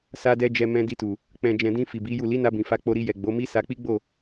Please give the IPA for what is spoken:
s a˧ d ɛ˧ d͡ʒ ɛ˧ m ɛ̃˧ d i˧ t u˨ | k͡p ɛ̃˨ d͡ʒ ɛ̃˨ d ĩ˧ f i˨ b i˨˦ j u˦˨ l i˨˦ n a˧ b ĩ˨ f a˧ k͡p o˧ ɾ i˧ j ɛ˨ ɡ͡b o˨˦ m i˦ s a˧ k͡p i˦ ɡ͡b o˦˨

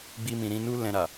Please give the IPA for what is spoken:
ɡ͡b i˧ m ĩ˨ ɾ ĩ˧ n u˦ l ɛ̃˧ ɾ a˨

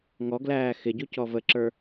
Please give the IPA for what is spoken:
ŋ ɔ ɡ l æː x ɪ ɟ u c ɔ v ə ǁ ə˞

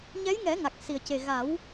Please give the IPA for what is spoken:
ɲ ɛ˧˥ j ŋ ɛ˨˩˦ ŋ a˨˩ k̚ s i˨˩ ə̯ c e˨˩ ɣ a˨˩˦ w

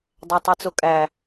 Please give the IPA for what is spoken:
dˤ æ tˤ i t͡s o kʼ æ

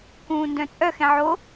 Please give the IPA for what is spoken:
k ũː n d œ̃ t͡sʼ œ x ɛ̃ ʕ o

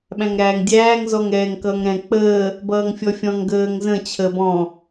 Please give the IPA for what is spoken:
ɓ æ̃ ŋ ɾ æː ŋ dʲ æː ŋ z ɔ ŋ ɛː ŋ k ʌː ŋ ɾ ɛ̃ k͡p əː | b ʌː ŋ fʲ ɔ fʲ ɔ̃ ŋ ɡ əː ŋ z ə̃ t͡ɕʰ əː b ɔ̃

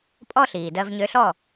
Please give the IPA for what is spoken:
pʼ ɔ˥ ɬ iː˩ d ɜ˧ v ɲ ø˧ ɬ ɔ˥˩

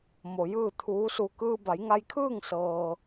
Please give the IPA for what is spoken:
m o˩ j ɯː˥˨ t̪ʰ uː˧˥ s u˧ k ɯː˧ b a˩˧ j ŋ a˧ j kʰ ɯː˥˨ ŋ s ɤː˩

